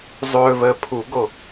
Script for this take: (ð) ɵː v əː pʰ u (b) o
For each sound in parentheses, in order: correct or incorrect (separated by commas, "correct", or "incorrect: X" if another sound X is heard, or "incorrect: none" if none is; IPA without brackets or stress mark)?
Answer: incorrect: zˤ, incorrect: ɡ